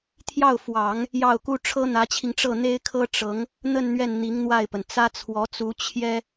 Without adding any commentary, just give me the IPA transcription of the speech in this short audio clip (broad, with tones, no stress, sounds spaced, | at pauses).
t̪ʰ j ɑ˥˩ ʊ̯ f w ɑ˨˩˦ ŋ | j ɑ˥˩ ʊ̯ k u˥ ʈ͡ʂʰ ɤ˥ n̪ ä˧˥ t͡ɕʰ i˧ ŋ ʈ͡ʂ ɤ˥˩ n̪ e˥ ɪ̯ kʰ ɤ˥ ʈ͡ʂ ɤ˧˥ ŋ | n̪ ə˥˧ n n̪ ɥ ɛ˥˩ n n̪ i˧˥ ŋ n̪ w a˥˩ ɪ̯ p ə˩ n t͡s ä˥ t͡sʰ w ɔ˧˥ t͡s u˧˥ t͡ɕʰ j ɛ˥